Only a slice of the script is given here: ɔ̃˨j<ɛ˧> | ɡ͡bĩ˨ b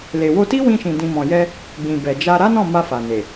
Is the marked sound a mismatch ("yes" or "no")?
no